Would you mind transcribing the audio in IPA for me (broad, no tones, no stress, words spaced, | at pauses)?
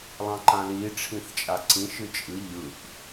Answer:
lˠɑ̃ǃãli ʈ͡ʂʰĩθt͡ʃʼaǀĩ ʃɨt͡ʃʼɨ ʎɯʔ